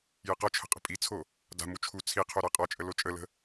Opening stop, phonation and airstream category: plain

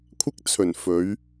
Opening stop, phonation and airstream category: aspirated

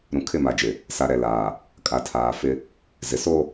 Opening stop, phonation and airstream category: aspirated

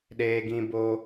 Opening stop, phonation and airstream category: implosive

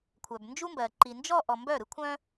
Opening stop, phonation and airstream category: aspirated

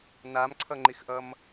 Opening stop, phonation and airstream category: click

